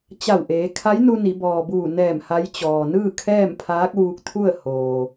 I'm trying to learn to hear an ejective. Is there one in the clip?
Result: no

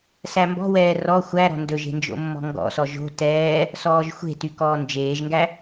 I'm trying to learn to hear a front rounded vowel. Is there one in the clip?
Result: yes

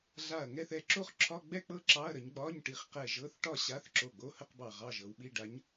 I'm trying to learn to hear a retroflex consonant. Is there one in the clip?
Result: yes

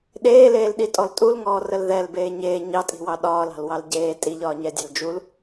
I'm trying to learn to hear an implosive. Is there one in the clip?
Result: yes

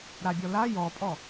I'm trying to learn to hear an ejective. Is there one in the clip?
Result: yes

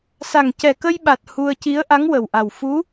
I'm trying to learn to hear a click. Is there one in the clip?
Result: no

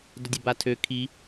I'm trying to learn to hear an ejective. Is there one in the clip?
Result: no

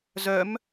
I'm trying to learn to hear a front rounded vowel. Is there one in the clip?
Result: yes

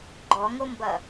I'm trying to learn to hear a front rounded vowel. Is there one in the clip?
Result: no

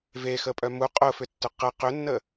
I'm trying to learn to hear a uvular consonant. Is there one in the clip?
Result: yes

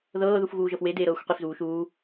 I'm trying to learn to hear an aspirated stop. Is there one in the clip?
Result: no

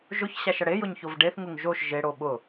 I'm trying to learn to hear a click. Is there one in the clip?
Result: no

